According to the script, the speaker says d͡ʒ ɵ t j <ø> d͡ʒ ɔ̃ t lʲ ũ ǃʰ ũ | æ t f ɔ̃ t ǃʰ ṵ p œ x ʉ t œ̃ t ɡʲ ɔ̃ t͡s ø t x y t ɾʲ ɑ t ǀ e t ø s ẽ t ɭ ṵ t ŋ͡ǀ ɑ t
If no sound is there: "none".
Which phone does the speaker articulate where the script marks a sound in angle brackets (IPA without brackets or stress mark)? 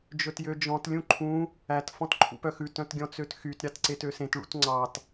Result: ø